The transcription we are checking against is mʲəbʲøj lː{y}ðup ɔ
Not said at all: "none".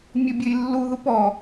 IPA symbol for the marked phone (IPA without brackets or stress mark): u